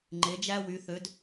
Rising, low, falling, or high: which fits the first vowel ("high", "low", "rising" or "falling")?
rising